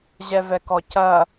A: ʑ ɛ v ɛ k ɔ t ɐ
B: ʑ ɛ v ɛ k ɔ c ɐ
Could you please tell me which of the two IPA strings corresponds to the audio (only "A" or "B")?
B